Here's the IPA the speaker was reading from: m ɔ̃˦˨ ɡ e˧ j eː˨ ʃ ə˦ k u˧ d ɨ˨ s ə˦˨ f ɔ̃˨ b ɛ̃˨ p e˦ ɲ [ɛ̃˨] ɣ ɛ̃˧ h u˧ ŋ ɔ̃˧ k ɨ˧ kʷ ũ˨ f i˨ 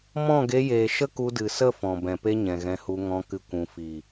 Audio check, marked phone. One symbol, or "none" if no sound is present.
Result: ɛ̃˨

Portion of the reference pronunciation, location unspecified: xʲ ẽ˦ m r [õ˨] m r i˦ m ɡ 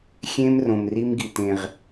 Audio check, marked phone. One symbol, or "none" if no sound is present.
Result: õ˨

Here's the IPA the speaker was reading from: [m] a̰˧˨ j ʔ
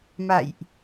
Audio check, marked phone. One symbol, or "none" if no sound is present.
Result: m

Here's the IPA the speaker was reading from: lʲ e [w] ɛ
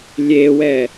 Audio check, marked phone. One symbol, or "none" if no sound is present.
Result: w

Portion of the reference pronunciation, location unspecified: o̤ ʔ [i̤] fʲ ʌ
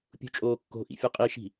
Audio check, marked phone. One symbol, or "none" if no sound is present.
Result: ḭ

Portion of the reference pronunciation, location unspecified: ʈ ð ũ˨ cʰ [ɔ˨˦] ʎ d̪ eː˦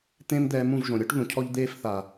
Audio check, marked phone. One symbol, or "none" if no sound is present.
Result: ɔ˦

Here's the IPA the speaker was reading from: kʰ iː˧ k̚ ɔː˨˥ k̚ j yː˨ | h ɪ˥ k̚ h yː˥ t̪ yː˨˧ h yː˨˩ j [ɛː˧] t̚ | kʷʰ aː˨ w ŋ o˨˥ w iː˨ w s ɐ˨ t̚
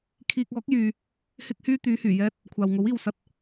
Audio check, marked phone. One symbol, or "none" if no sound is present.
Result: ɛː˧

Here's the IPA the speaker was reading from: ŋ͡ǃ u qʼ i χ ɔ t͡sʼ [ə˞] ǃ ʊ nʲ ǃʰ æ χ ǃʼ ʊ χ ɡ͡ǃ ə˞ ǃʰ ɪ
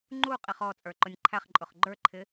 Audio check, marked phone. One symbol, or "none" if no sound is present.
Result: ə˞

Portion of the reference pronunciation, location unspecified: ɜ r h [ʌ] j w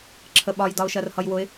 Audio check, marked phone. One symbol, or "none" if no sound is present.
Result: ʌ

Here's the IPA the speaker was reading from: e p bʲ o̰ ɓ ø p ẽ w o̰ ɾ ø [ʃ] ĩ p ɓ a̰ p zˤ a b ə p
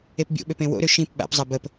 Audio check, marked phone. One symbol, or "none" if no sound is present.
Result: ʃ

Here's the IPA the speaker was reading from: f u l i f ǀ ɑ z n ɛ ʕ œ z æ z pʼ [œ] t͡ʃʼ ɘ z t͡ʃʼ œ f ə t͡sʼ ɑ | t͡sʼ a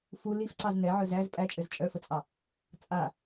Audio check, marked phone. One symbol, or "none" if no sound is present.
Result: æ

